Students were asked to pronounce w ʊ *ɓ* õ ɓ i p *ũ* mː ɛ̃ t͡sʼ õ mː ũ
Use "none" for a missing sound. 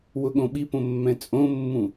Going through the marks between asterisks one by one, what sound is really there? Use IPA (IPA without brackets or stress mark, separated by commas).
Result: ɠ, õ